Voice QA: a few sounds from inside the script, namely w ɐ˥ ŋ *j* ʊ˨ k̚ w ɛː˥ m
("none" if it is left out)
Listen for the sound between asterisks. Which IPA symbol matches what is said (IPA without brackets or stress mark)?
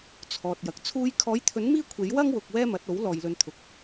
w